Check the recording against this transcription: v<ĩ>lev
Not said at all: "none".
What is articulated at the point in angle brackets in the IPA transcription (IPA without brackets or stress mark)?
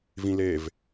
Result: ĩ